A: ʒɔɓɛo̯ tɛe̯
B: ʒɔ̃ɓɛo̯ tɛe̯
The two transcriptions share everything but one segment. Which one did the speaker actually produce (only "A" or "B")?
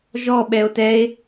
A